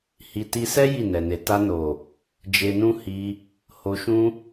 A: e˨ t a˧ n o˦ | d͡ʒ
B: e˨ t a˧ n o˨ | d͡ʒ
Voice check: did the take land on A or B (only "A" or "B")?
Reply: B